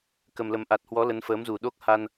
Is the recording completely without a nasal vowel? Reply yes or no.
yes